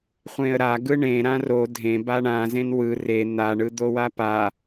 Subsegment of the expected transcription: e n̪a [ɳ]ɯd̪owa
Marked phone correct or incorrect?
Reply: correct